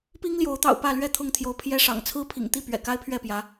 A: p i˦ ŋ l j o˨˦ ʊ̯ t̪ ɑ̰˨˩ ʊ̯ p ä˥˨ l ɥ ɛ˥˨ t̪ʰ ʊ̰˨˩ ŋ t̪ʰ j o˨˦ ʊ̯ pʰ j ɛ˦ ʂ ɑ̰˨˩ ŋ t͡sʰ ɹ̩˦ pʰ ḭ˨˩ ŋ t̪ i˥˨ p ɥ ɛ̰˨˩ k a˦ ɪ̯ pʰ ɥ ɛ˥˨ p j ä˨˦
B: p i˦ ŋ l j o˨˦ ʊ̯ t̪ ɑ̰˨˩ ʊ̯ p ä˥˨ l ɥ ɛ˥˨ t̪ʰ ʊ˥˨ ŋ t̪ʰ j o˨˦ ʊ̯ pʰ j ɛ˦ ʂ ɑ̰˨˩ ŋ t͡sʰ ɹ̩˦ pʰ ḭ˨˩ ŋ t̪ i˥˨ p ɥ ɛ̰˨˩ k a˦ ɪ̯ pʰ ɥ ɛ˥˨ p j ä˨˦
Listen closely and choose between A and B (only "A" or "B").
B